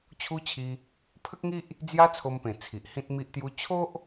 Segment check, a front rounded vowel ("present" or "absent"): absent